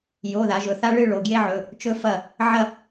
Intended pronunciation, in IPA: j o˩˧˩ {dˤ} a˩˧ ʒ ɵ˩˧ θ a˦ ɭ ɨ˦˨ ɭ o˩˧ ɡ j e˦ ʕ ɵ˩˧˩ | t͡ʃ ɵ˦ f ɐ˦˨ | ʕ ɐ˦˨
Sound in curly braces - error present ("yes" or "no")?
yes